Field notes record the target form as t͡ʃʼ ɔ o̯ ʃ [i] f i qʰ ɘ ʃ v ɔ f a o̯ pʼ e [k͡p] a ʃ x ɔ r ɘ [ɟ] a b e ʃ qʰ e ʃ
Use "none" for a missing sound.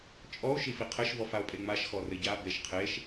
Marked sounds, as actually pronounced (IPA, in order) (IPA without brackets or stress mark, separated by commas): i, ŋ͡m, ɟ